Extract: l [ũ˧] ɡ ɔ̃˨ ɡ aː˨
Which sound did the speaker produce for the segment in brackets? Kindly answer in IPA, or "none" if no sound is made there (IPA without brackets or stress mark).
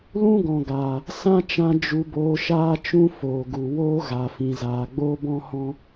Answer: ũ˦